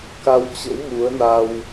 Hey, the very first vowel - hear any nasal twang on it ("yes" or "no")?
no